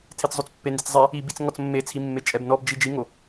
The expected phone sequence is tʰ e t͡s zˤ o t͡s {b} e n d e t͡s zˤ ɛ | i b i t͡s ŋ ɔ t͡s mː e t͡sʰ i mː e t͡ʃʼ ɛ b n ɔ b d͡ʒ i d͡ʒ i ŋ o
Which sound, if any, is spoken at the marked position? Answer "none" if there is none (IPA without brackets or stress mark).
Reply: pː